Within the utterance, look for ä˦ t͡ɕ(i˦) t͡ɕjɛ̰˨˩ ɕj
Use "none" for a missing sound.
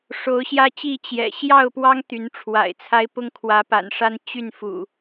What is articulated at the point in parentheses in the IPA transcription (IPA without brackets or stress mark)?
i˥˨